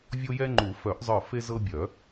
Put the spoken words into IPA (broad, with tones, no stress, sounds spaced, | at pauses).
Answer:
vʲ o˦ j ɛ˦ ŋ͡ǃ u˨˩˦ f œ˨˩˦ ʔ zˤ ə˞˧˩ f e˦ z ɤ˦ bʲ œ˨˩˦